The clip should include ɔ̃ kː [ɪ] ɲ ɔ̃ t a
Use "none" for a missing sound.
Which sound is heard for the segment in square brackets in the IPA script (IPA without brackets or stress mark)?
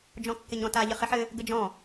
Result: ɪ